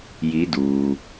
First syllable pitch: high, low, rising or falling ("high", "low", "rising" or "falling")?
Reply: rising